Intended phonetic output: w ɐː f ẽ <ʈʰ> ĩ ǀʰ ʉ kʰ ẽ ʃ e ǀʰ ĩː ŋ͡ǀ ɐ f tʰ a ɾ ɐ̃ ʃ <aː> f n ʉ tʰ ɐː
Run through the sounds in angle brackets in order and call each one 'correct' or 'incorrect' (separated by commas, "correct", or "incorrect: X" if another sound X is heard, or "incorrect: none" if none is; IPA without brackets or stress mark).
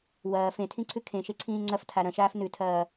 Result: incorrect: tʰ, correct